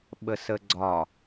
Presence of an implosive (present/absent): present